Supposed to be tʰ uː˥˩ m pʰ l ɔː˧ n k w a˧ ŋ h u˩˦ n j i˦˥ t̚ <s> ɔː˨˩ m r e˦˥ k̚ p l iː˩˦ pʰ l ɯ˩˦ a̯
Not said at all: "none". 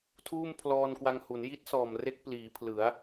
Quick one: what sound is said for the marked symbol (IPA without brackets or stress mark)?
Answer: s